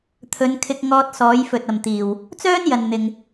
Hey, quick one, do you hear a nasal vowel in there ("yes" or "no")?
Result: no